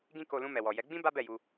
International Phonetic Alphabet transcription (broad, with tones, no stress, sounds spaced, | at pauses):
ɡ ĩ˦ k o˧ l ũ˧ m ɛ˨ w ɔ˨ j ɛ˨˦ ɡ͡b ĩ˦ b a˦ b ɛ˦˨ j u˧